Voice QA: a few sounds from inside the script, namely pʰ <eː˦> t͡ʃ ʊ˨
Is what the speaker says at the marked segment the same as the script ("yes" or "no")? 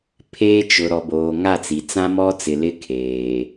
yes